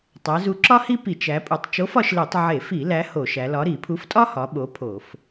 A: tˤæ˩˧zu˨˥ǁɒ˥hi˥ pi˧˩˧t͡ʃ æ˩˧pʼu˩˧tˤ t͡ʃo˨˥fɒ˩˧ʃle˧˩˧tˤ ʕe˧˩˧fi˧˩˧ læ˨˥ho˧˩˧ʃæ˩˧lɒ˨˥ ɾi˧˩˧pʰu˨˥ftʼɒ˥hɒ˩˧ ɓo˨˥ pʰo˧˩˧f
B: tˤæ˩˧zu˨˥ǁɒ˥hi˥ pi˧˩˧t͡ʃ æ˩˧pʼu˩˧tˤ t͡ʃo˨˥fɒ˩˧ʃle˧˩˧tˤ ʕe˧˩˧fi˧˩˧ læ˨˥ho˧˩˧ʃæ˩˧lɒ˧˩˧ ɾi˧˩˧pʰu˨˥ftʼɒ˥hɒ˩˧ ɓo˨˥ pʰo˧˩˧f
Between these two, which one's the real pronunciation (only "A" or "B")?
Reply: A